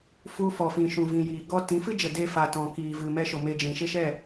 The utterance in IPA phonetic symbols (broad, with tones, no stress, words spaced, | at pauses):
fu˧fɔ˨fĩ˨ ʃũ˨vĩ˨jiː˨ ɡɔ˧tĩ˨˦fɨ˦d͡ʒə˨ de˧fa˨tɔ̃˨ kiː˨vɨ˨mɛ˧ʃo˨ me˧d͡ʒĩ˨ ʃe˦ʃɛ˦˨